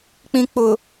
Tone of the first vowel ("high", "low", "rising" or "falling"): low